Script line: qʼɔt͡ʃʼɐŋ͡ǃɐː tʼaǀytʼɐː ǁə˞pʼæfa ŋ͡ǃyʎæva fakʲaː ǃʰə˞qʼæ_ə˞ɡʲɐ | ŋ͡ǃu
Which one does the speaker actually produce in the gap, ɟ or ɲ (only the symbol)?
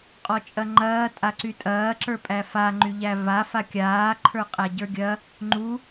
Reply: ɟ